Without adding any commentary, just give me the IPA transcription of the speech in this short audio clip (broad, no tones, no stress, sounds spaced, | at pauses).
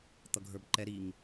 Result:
t̪ ʌ ɡʱ ə˞ b ǃ ɛ ɾ i ŋ